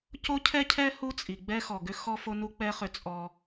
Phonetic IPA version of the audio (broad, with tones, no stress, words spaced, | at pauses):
co˦cʰɛ˦cʰɛ˦ hu˦t͡sʼi˨ ɡ͡bɛ˦xɔ˨ɡʏ˦ xɔ˦fo˦nu˦k͡pɛ˦ χʏ˦t͡sʼɔ˦